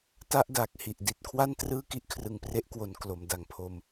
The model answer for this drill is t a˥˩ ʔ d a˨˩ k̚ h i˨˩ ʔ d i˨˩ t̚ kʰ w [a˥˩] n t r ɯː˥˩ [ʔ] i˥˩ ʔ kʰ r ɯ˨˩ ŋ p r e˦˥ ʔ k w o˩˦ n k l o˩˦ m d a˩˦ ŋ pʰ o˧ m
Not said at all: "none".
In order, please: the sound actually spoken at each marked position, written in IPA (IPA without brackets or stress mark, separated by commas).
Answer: a˥˩, k